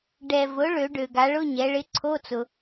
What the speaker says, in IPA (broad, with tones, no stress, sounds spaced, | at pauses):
ɖ ɛ˩ v ʊ˩˧ ɭ ø˩˧ ɖ ø˩ ɡ a˩˧ ɭ ʊ˧˥˧ ɲ ɛ˩˧ ɭ ɪ˧˥ ǀʰ o˧˥˧ t͡s ʊ˩